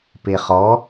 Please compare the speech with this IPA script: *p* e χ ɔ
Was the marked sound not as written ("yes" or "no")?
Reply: no